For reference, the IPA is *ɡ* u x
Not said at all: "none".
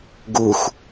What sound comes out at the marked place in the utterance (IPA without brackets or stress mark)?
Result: ɡ